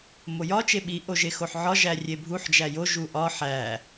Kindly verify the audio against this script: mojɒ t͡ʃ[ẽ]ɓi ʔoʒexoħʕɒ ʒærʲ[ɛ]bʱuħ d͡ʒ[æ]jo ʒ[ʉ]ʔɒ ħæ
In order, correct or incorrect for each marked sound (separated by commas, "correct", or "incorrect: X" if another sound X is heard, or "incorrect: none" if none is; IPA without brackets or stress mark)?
incorrect: e, incorrect: e, correct, incorrect: u